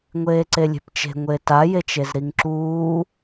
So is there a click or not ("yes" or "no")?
yes